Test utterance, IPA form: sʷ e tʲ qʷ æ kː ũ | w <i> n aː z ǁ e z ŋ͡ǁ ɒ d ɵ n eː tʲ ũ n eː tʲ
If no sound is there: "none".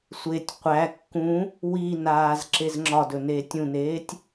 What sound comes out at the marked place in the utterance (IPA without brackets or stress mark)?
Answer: i